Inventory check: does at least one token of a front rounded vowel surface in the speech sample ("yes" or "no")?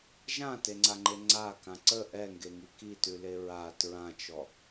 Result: no